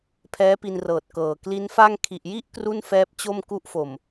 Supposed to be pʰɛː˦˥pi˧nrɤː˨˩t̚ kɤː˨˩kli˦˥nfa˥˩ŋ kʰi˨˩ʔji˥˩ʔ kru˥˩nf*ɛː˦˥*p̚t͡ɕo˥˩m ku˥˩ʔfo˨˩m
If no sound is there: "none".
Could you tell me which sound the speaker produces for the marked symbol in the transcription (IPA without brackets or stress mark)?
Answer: ɛː˦˥